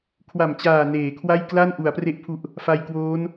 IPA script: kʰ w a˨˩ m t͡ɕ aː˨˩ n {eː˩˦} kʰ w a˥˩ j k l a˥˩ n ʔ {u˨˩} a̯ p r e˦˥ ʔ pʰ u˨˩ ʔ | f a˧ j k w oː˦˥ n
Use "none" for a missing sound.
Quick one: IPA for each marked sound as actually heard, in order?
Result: eː˩˦, u˩˦

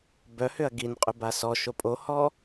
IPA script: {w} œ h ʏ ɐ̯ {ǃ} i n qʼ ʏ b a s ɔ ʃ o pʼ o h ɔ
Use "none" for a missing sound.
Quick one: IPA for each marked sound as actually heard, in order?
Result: b, ɡ

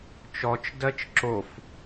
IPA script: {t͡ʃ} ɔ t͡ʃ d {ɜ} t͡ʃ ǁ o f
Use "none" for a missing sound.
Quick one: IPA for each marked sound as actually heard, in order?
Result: t͡ʃ, ɜ

